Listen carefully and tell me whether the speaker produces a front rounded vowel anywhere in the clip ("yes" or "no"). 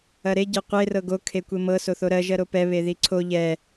no